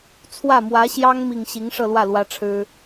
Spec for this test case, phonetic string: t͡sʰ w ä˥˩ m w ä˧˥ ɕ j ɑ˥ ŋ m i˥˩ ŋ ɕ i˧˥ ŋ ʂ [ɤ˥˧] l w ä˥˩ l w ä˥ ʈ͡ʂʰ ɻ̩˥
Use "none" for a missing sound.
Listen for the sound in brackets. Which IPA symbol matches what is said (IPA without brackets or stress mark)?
ɤ˥˧